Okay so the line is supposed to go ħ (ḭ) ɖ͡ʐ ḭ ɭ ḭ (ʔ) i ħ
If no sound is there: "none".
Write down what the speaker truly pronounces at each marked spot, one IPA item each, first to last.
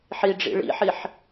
i, ħ

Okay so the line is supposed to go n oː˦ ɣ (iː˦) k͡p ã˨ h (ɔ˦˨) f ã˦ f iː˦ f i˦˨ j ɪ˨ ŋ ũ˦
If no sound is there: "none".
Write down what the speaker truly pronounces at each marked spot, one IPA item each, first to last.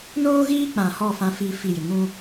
iː˦, ɔ˦˨

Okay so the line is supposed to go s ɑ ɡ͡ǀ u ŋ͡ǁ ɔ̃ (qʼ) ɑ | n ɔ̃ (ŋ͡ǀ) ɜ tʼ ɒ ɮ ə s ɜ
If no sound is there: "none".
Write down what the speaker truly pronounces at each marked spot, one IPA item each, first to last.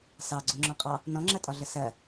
qʼ, ŋ͡ǁ

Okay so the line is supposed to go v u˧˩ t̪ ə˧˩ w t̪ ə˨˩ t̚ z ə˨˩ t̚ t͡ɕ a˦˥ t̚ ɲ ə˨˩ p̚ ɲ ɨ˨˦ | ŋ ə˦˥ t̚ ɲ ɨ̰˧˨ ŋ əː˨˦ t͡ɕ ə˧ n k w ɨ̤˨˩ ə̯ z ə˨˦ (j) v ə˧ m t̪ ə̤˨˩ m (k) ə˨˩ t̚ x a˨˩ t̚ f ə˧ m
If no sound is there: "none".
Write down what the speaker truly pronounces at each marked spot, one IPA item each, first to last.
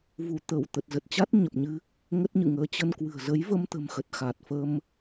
j, x

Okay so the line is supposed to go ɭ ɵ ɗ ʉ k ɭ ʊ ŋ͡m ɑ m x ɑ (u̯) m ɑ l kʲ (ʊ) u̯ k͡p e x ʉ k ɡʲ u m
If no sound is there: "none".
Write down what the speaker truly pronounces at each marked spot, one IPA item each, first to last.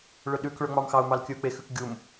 u̯, ɵ

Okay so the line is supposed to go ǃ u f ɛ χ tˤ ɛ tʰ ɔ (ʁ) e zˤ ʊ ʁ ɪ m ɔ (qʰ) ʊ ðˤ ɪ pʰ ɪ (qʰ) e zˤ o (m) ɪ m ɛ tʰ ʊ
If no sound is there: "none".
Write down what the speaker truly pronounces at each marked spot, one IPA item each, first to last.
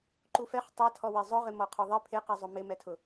w, qʰ, q, m

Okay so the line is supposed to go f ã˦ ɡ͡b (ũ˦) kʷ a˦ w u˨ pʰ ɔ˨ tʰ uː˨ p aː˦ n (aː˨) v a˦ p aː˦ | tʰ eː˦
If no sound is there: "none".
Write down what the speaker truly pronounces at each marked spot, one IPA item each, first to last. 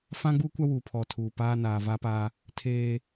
u˦, aː˨

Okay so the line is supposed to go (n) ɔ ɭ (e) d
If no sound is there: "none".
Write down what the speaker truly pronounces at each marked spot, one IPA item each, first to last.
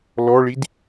l, i

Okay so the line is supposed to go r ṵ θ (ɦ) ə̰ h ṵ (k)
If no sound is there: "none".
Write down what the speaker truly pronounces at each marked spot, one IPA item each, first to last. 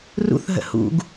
ɦ, ɡ

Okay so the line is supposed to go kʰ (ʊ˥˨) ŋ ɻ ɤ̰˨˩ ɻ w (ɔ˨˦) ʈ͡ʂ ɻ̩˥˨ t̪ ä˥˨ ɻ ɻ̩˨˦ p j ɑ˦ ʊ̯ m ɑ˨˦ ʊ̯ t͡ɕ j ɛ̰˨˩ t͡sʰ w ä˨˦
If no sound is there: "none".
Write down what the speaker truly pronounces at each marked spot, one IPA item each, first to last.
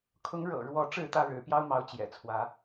ʊ˨˦, ɔ˨˦

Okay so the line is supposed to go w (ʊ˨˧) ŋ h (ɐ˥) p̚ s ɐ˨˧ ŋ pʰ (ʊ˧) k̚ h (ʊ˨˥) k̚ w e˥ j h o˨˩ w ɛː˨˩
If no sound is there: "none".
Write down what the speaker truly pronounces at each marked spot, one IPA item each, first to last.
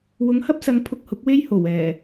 ʊ˨˧, ɐ˥, ʊ˧, ʊ˨˥

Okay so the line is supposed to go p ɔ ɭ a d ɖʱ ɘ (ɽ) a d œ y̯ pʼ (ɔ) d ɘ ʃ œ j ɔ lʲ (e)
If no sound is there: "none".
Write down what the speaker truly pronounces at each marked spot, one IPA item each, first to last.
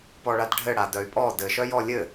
ɽ, ɔ, ɘ

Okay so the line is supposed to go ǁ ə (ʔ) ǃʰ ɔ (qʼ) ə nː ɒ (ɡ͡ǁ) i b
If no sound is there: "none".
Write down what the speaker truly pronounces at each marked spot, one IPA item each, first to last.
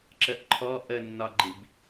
ʔ, ʔ, ɡ͡ǃ

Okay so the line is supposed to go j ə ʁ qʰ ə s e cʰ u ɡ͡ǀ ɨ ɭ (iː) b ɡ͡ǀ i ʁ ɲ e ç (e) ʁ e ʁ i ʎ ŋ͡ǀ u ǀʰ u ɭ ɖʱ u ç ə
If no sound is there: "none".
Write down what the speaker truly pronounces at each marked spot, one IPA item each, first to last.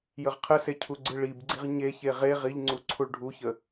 i, e

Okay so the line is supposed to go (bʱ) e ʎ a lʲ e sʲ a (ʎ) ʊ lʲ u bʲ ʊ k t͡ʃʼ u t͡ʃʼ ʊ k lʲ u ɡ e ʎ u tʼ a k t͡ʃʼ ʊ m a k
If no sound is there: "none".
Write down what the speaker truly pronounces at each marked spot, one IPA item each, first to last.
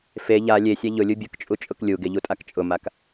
f, ʎ

